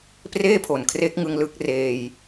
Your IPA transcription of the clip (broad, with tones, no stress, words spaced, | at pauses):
preː˥˩ pʰo˨˩nkʰre˦˥k̚ŋɯ˧ŋ lɯ˦˥k̚reː˧j